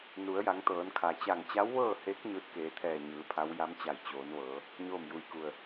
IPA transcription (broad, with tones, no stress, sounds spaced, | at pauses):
n u˩˧ ə̯ j a˩˧ ŋ t̪ ɤː˩˧ n kʰ a˩ t͡ɕ a˧˩ ŋ t͡ɕ a˧˥ w ʋ ɤː˥˨ h e˧˥ k̚ ɲ ɯː˧ t̚ k eː˩˧ t̪ʰ ɛː˧˩ ɲ ɯː˩˧ pʰ a˧˥ w j a˧˥ m t͡ɕ a˧˩ j t͡ɕ oː˩˧ n ʋ ɤː˩˧ | ɲ oː˥˨ m j u˧˩ j k u˧˩ ə̯